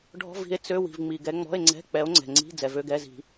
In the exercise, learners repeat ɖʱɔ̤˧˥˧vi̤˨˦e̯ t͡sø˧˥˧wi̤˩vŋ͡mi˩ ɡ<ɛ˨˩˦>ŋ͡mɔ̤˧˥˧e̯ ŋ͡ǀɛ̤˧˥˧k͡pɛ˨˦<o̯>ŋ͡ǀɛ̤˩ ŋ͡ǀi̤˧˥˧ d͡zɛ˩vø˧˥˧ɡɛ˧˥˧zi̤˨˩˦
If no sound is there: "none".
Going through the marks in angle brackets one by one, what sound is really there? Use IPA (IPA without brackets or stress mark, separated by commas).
ɛ˨˦, o̯